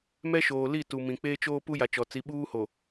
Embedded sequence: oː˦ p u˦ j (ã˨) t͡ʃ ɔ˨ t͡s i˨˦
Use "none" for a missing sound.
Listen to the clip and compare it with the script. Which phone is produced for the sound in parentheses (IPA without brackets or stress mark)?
a˨